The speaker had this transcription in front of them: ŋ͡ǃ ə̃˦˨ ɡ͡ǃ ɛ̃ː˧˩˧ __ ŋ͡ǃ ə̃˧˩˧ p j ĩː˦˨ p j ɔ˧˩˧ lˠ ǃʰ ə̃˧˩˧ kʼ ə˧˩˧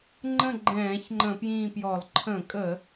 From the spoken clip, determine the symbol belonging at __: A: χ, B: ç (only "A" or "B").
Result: B